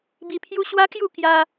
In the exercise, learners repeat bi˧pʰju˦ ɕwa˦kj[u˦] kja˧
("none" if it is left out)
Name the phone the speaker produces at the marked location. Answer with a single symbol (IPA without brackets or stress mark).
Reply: u˥˧